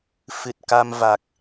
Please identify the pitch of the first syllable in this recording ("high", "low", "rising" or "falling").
low